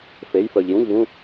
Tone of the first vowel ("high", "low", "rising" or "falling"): rising